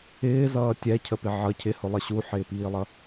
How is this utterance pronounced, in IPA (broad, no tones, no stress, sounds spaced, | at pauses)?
ɪː z ʌː tʲ ɛ cʰ ə p ɪ ʕ ʌ cʰ ɪ h ʊ lˠ ə ɕ u ħ ɪː p iː lˠ ʌ